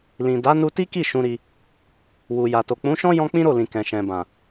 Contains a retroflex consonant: no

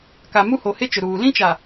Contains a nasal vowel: yes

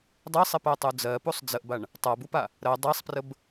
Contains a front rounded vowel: no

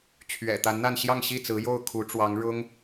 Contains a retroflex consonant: yes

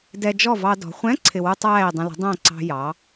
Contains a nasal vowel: yes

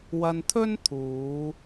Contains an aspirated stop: yes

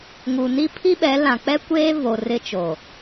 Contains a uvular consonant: no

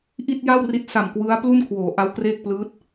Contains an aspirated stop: yes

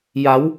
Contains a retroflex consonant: no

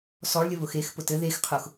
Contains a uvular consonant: yes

